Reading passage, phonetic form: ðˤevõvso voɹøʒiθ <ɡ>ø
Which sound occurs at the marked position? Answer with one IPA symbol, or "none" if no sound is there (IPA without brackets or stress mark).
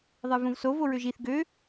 ɡ